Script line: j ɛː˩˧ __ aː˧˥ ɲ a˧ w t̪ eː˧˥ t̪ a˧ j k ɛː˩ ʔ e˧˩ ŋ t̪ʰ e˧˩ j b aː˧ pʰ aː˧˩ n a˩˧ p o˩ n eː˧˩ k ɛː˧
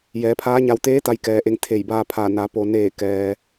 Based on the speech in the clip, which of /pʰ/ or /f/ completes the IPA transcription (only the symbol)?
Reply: pʰ